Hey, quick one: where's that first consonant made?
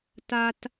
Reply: tongue tip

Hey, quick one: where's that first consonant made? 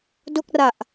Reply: tongue tip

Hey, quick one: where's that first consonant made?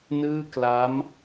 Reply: tongue tip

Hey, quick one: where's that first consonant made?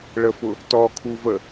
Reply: retroflex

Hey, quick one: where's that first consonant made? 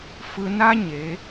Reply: lips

